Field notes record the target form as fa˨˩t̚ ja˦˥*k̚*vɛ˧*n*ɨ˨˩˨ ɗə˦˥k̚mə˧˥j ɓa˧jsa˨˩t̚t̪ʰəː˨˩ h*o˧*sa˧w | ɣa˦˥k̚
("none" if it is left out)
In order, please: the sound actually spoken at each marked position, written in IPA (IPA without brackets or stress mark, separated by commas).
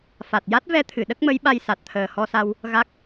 t̚, t̪ʰ, ɔ˧